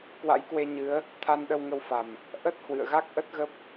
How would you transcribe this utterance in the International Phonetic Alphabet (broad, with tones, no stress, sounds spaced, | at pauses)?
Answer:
k w a̰˧˥ j k w e˧ ɲ ɨ˨˦ ə̯ | t̪ʰ a˧ n ɗ ə˧ w ŋ ə˧ w f a˨˩ m | ʔ ə˦˥ t̚ h w ɨ̰˧˨ ə̯ ɣ a˦˥ k̚ ʔ ə˦˥ t̚ ɣ ə˦˥ p̚